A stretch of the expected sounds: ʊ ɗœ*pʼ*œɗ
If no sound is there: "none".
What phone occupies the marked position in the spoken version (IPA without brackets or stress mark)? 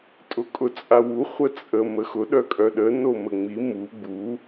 kʼ